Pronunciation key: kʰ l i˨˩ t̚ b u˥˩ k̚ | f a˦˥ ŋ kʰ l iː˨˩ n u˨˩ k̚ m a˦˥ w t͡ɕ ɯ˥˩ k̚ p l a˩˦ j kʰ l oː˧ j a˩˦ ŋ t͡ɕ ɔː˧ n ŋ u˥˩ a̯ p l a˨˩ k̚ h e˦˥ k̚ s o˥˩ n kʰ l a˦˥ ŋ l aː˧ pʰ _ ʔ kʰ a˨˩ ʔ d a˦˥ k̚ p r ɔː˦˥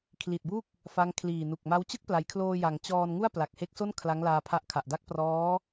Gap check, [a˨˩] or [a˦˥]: a˦˥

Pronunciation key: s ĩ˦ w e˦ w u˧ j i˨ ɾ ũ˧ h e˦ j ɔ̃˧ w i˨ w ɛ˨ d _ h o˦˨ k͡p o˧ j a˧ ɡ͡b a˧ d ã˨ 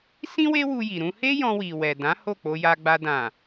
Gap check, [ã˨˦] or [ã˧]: ã˨˦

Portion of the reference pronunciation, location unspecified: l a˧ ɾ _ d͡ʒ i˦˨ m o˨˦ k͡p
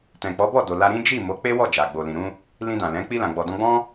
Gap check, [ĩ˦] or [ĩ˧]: ĩ˦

